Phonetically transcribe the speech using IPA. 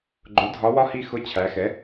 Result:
ɡ͡ǃ ʊ˩˥ dʱ ɒ˧˥ w ɒ˥ h i˦˨ x ʊ˧˥˧ t͡ɕʰ æ˩˧ x ɛ˩˥

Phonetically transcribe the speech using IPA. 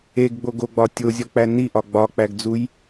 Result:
e ɡ ɡ͡b o ɡ o ɡ͡b ɒ tʲ o zʲ ɒ k͡p æ n i ʔ ɒ ɡ͡b ɒ k͡p æ ɡ d͡z u j

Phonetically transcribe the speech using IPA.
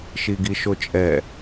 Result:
ʃ i ɡ i ʃ o t͡ʃʼ ɛ

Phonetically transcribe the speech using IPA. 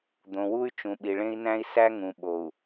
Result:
d̪ õ˨ w u˦ y̯ t͡ʃ ũ˨ ɓ i˨ ɭ ẽ˦ i̯ n æ̃˦ i̯ s æ˦ ŋ ũ˨ ɓ o˨ u̯

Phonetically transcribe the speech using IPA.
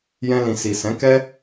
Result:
j ɛ̃˧ l ĩ˨ s i˨ s ɛ̃˨˦ k ɛ˦

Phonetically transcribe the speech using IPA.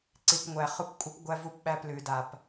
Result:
ǀ i˨ p ŋʷ æ˨ χ u˦ p kʷʼ ɨ˦ p ɡʷ æ˦ v u˦˨ p ɓ æ˦ p l ʉ˨ d a˨ p

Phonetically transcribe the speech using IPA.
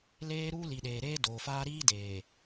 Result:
l eː˦ ɾ uː˦ l i˨ ɗ eː˨ ɾ eː˦ d oː˨ f aː˦ ɾ iː˦ d eː˨

